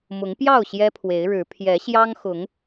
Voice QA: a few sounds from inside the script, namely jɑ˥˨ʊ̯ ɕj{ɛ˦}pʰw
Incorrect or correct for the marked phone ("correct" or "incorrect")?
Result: correct